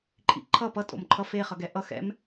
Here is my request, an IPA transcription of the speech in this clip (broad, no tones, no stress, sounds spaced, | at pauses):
ǃʼ ḭ ǃʰ ʌ p ʌ tʼ o̰ m ǃʰ ʌ f e χ ʌ ɡ ɛ ʔ ʌ x ɛ̰ m